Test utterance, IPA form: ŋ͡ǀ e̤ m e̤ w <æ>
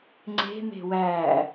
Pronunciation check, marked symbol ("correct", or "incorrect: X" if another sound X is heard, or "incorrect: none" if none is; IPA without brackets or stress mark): correct